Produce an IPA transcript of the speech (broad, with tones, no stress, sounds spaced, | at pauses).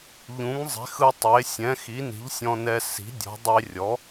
ʎ ũ˩˥ ŋ zˤ e̤˩˥ x ɯ˧ tˤ e˩˥ sʲ ɛ̃˩˥ x i˩˥ n i̤˩˥ ʎ sʲ ɔ̃˧ n ɛ˧ s i̤˩˥ dʲ ɔ̤˩˥ dˤ e˧ rʲ ɔ˩˥